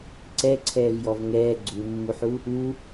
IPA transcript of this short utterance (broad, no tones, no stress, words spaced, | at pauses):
ǀɛǀʰɛːvjɔv ŋɛː ɡ͡ǀumːuħu | u